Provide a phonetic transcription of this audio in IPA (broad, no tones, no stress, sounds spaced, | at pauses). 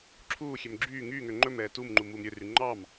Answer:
ǁʰ uː xʲ ø m ɡ͡ǁ yː ŋ yː ŋ ø ŋ͡ǃ ɵ m ɛː t u m ŋ͡ǃ u m uː m ɾʲ ø r y ŋ͡ǃ ɑ m